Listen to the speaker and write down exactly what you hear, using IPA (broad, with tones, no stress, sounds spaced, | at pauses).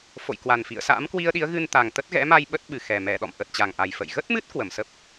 f o̰˧˨ j k w a˨˩ n f ḭ˧˨ ə̯ s a̰ː˧˥ m k w i˧ ə̯ ɗ i˨˦ ə̯ ɣ ɨ˧ n t̪ a˨˩ ŋ t̪ ə˦˥ t̚ ɣ ɛ̰˧˥ m a˧ j ɓ ə˦˥ t̚ ɓ ɨ˨˩ x ɛ˨˩ m ɛ˧˩ ɗ ɔ̰˧˨ m ʔ ə˨˩ t̚ t͡ɕ a˨˩ ŋ ʔ a˨˩ j f ə̰˧˨ j ɣ ə˦˥ t̚ m ɨ˦˥ t̚ k w ə˧˩ m s ə˦˥ p̚